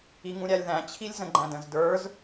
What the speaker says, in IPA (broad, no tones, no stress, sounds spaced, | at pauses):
i ŋ ũ ɾʲ æ lʲ ð æ̃ t͡ɕʰ i lʲ z ə̃ ɡ͡ǃ æ̃ d ə̃ z d ə˞ z